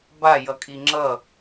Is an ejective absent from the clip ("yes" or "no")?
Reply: no